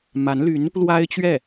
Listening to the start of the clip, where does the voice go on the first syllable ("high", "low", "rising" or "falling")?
rising